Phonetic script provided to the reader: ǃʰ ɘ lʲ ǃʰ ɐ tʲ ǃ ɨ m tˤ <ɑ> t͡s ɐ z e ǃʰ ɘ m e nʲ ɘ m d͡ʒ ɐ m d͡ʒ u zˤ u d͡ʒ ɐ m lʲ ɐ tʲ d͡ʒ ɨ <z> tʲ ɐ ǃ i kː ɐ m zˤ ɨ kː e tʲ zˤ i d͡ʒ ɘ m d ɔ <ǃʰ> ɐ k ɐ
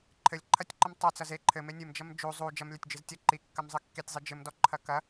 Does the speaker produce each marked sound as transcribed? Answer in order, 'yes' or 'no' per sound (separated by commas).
no, yes, yes